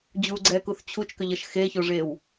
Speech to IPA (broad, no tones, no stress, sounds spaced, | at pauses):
d͡ʑ u ɡ͡ǀ ɛː k u θ t͡ɕʰ u t͡ʃ k ʏ ʎ ʌ ʃ x e ç o ʐ eː w